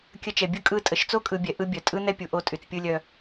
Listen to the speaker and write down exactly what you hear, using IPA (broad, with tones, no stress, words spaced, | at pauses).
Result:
kʲə˧t͡ʃɛ˨bʲɯ˦ kʼɯ˦˨tʼə˨˦ʃ t͡so˦kʼɯ˨bʲɛ˨ ʔɯ˧ bʲœ˨tʼɯ˦nɛ˦pʲu˨ ʔo˧tʼy˨t͡s pʲɯ˧lʲœ˧